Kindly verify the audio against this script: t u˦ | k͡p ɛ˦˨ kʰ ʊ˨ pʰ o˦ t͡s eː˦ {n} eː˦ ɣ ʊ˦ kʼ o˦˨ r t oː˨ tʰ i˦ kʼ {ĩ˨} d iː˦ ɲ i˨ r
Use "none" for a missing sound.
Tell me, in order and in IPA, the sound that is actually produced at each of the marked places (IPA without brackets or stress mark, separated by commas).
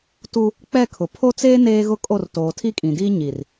n, ĩ˨